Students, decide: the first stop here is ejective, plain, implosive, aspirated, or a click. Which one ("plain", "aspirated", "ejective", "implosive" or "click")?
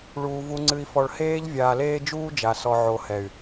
click